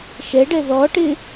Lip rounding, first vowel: unrounded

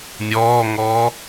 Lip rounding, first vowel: rounded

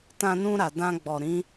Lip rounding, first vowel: unrounded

